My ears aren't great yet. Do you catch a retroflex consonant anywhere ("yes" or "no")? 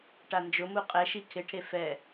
yes